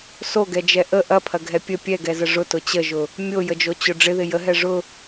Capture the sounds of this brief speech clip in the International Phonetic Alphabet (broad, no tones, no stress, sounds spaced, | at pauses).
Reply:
s o ɡ ɛ d͡ʒ ɛ ʔ ə ʔ ɐ pʰ ɐ ɡʱ ɛ pʲ ə pʲ ɛ ɡ ɛ z ə ʐ ʊ t ʊ t͡ɕ ə ʒ ʊ | mʲ o j ə d͡ʒ o t͡ɕ ʊ ɖ͡ʐ ɪ ð ɪ j ə ɦ ɛ ʐ ʊ